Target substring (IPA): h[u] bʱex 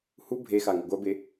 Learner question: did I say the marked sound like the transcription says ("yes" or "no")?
yes